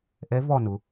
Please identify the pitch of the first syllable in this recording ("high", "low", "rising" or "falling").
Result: rising